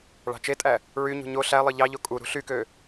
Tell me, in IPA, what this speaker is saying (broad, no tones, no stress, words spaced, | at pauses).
ɭɑ̤t͡ʃetʼæ | ɹyɲṳ ɲo ɬælˠɯ ʎɑʎo kʼu ɾṳɬykø